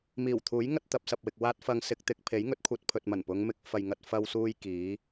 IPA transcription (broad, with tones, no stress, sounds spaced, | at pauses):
m iː˨˩ w t̪ʰ uː˨˥ j ŋ ɐ˥ t̚ t̪ ɐ˧ p̚ s ɐ˨ p̚ w ɪ˨ k̚ w aː˥ t̚ f ɐ˧ ŋ s ɪ˧ k̚ t̪ ɪ˧ k̚ pʰ e˨˥ j ŋ ɵ˨˥ t̚ kʷʰ ɐ˧ t̚ pʰ ɵ˨ t̚ m ɐ˨˩ n p ʊ˨˧ ŋ m ɪ˨˥ k̚ f ɐ˨ j ŋ ɐ˧ t̚ f ɐ˧ w s uː˧ j k iː˨˥